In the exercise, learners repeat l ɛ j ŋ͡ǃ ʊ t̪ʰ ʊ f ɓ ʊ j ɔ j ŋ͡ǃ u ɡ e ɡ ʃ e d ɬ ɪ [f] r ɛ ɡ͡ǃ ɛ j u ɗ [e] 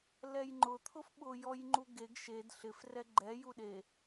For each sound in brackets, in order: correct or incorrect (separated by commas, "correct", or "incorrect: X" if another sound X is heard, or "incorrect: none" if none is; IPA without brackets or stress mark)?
correct, correct